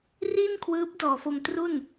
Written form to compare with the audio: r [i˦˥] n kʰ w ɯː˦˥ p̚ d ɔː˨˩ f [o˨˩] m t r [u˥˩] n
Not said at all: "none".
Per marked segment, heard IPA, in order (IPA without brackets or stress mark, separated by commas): i˥˩, o˧, u˥˩